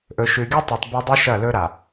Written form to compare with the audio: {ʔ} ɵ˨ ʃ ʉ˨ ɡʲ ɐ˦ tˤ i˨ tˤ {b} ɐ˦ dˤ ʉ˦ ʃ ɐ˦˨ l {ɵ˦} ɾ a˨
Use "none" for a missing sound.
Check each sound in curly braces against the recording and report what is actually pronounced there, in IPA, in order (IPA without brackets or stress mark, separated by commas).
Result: ʔ, b, ɵ˦